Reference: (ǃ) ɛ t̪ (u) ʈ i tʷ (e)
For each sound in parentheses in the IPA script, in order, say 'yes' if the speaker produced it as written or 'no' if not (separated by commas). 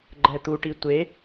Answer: no, yes, yes